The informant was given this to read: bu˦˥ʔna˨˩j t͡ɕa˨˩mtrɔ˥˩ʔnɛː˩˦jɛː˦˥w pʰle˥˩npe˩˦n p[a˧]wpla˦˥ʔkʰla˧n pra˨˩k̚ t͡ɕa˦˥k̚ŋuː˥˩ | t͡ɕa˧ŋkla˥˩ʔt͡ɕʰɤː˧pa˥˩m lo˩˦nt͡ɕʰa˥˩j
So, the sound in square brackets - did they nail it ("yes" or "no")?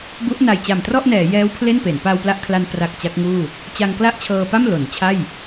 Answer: yes